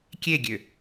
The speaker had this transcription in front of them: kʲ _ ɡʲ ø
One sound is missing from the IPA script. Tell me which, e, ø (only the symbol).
e